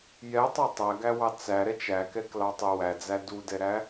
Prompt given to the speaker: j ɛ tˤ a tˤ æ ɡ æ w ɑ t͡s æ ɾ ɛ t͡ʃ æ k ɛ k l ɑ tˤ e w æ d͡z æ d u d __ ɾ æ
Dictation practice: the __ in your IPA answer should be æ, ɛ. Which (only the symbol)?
ɛ